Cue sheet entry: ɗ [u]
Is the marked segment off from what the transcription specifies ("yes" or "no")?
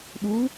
no